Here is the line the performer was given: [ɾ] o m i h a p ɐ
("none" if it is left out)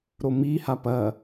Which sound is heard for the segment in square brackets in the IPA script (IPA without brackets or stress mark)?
ɾ